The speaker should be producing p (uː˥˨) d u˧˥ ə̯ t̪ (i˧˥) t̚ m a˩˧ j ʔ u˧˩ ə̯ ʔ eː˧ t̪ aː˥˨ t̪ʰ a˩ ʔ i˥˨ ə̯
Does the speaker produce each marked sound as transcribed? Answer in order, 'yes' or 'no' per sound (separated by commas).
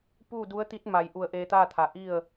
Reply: yes, yes